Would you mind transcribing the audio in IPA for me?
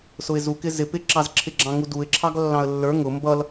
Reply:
s ʊ ɪ̯ z u k ɪ z ɪ p ɪ ǁ ɑ z ǁʰ ɪ ɡ͡ǁ ɑ̃ ŋ u d u ɪ̯ ǁʰ ɑ ɡ lː ɑ̃ ə̯ lː ə˞ ŋ ʊ m b ʌ l

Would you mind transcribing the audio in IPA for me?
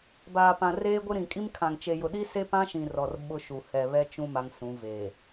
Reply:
b aː˨ p ã˨ r eː˦ ɡʷ ɪ˦ ɾ ĩ˨ kʼ i˦ m kʰ ã˨ ŋ t͡ʃ e˨ j ʊ˨ ɗ i˦ s e˦ p ã˦ ʃ ĩ˨ r ɔ˨ r ɓ ʊ˦ ʃ u˨ h ɛ˨ β ɛ˦ t͡ʃ ũ˦ m a˦ ŋ s ũ˨˦ v eː˨

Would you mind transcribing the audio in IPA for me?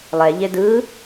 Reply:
lˠ ɛ ʎ e d ɯ

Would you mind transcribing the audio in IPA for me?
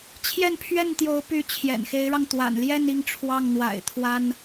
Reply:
t͡ɕʰ j ɛ˥˧ n pʰ ɥ ɛ˥˩ n t̪ j o˧˥ ʊ̯ p y˧˥ t͡ɕʰ j ɛ̰˨˩ n x e˧˥ ɪ̯ ɻ ɑ˧ ŋ t̪ w a̰˨˩ n l j ɛ˥˧ n i˥˧ ŋ ʈ͡ʂʰ w ɑ˥˩ ŋ n̪ w a̰˨˩ ɪ̯ t̪ʰ w a˥ n

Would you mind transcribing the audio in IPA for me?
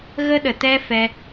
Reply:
ɣ ə˦ ɗ ə˨ t ɛ˦ f ɛ˧

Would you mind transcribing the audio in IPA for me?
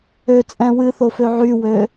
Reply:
ø t͡sʼ ɛ̃ w ɨ θ o f ø ʕ y w ø

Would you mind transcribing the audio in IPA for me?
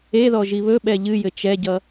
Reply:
e ð ɔ ʒ i β ɵ ɓ ɛ ʎ ɨ j ɘ t͡ʃ ɛ ɟ ʌ

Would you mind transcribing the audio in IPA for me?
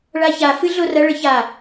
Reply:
ɭ a ç a f ɨ ɮ o r ɐ ɭ ɘ ç a

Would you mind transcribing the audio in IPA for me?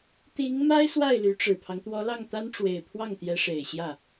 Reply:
t̪ i˧˥ ŋ m a˥ ɪ̯ s w a˥˩ ɪ̯ l y˧˥ ʈ͡ʂ ɻ̩˨˩ pʰ ɑ˦ ŋ t̪ w ɔ˧˥ l ɑ˥˩ ŋ t̪ a˥ n ʈ͡ʂ w e˨˩ ɪ̯ pʰ w ɑ˥˩ ŋ t̪ j ɛ˧˥ ʂ e˨˩ ɪ̯ ɕ j ä˥˩

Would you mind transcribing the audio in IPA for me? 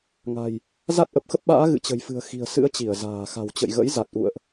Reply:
ŋ a̤˨˩ j | z a˦˥ t̚ ʔ ə˨˩ p̚ x ə˦˥ p̚ ɓ a̰ː˧˥ ɣ ɨ̰˧˨ t͡ɕ ə̤˨˩ j f ɨ̤˨˩ ə̯ x i̤˨˩ ə̯ s ɨ̰˧˥ ə̯ t͡ɕ i˧˩ ə̯ z a̤ː˨˩ x a̤˨˩ w t͡ɕ ə̰˧˨ j ɣ ə̰˧˥ j z a˨˩ t̚ ʔ ṵ˧˨ ə̯ ʔ

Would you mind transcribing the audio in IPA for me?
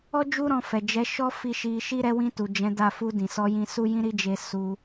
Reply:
ɔ˦ d͡ʒ u˦ ɾ ɔ̃˧ f ɛ˨ d͡ʒ ɛ˨˦ ʃ ɔ˦ f i˧ ʃ i˧ ʃ i˦ ɾ ɛ˧ w ĩ˧ t u˨ d͡ʒ ɛ̃˨˦ d a˦˨ f u˧ d ĩ˨ s ɔ˧ j ĩ˧ s u˦ j ĩ˦ ɾ i˦ d͡ʒ e˧ s u˧

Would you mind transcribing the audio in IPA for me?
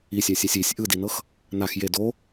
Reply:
i sʲ a sʲ a sʲ i sʲ ʔ ɯ d i n ɤ x | n a x j e d o

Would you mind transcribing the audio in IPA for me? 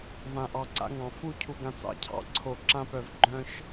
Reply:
v ã˨ ʔ ɑ˨ ǀ a̰˧ ŋ ɑ̃˨ f u˧ cʰ u˨ ɡ ã˨ t͡s ɑ̰˨ cʰ ɑ̰˨ ǀʰ o˨ ǁ ã˧ p œ˨ v ɡ͡ǃ œ̃˧ ʃ

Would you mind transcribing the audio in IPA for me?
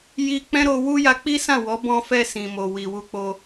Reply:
j i˧ k͡p ɛ̃˦ ɾ o˧ w u˦ j a˧ k͡p i˦ s ã˦˨ w ɔ˨˦ b ɔ̃˧ f ɛ˧ s ĩ˨ m o˨ w i˨ w u˧ k͡p o˧

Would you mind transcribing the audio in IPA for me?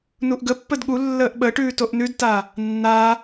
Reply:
n u ʔ ɡ ə pː ə d ɠ u lː əː ʔ ɓ ə ʈ ʉː t o ʔ n ʉ d t a | nː a

